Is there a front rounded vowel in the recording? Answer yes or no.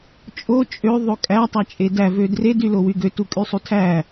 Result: yes